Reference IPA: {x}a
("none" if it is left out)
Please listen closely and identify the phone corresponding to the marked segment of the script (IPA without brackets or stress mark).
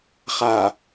χ